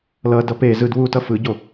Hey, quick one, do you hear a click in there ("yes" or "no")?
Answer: no